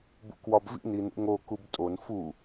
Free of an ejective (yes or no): no